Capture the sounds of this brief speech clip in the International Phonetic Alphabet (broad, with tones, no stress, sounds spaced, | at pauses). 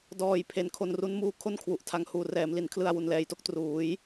d ɔː˨˩ j pʰ e˩˦ n kʰ o˧ n r u˦˥ n m uː˧ kʰ o˥˩ n kʰ w u˨˩ ʔ tʰ a˦˥ ŋ h uː˨˩ r ɛː˩˦ m l i˩˦ n kʰ l ɯ˧ a̯ w u˩˦ n l ɛː˩˦ j t o˥˩ k̚ t r uː˩˦ j